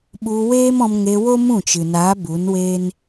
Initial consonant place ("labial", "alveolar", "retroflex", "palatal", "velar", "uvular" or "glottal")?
labial